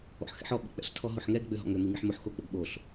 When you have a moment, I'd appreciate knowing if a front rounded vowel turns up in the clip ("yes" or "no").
yes